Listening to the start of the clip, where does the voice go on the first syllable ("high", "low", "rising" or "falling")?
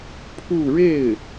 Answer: falling